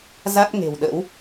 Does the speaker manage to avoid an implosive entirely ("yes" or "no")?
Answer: no